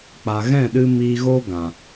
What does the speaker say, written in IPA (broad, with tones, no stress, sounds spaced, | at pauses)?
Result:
k͡p a˨ ɣ ɛ̃˦˨ ɗ ɨ˧ m iː˧ ɣ o˦ ɡ ã˨